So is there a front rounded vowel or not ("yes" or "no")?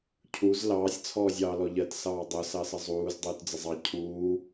no